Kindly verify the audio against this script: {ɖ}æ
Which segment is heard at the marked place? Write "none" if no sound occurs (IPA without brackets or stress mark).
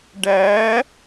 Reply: ɖ